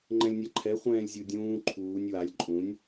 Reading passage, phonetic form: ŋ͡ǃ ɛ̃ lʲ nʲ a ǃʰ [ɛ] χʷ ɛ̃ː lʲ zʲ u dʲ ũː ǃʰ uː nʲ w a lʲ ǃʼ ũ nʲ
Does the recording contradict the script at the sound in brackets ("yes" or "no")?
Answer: no